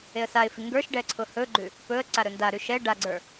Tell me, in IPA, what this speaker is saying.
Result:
eə̯saɪ̯fi ŋɡə˞ʃɖɛ ǀʰʊhɵɡ͡ǃʉ | pɵə̯ ǀaɾɵndaɾʉ ʃɛ ɖaɡ͡ǀə˞

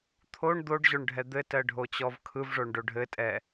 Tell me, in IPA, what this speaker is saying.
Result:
t̪ʰoɳ d̪oɖʑoɳɖʱɛ d̪ɘtɜɖʱot͡ɕɔv kʰɯvʐoɳɖo ɖʱɘtʼɛ

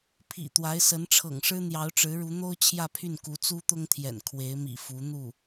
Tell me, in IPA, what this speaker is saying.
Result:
pʰḭ˨˩t̪wa˧˥ɪ̯sə˧˥n ʈ͡ʂʰɤ̰˨˩ŋʂɻ̩˥ n̪jɑ˧˥ʊ̯ʈ͡ʂɻ̩˧˥ɻu˧˥ n̪o˥ʊ̯ t͡ɕʰjä˥˧pʰy˥˩nku˧˥ t͡su˥t̪ʊ˥ŋt̪ʰjɛ̰˨˩n kʰwe˧˥ɪ̯mḭ˨˩ fu˧˥ n̪u˥˩

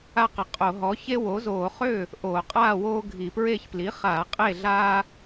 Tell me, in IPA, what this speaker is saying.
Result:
a˦qə˩˥ qʼo˧˩˧ɦɔ˩˥ çe˦wo˩˥zoː˧˩˧χø˥˩ | ʔo˧˩˧qʼaː˥˩woː˦ ɡʱi˧˩˧pɹe˥˩ç pli˩˥χaː˧˩˧ qʼe˥˩ɮaː˦

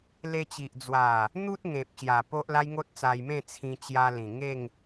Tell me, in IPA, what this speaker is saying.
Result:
le˧t͡ɕi˨ʔ d͡zwa˨˩ | n̪u˦t̚ŋẽ˨p̚ɕja˨˩ po˦ʔla˦jŋo˦t̚t͡sa˧j mẽ˥˧t͡sʰĩ˧t͡ɕja˧ lĩ˨˩ŋe˥˧ŋ

